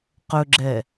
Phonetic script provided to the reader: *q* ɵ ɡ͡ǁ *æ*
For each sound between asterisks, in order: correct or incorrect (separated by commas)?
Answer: correct, incorrect